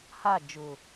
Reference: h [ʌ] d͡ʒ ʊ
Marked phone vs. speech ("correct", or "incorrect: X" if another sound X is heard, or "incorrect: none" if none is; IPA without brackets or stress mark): incorrect: a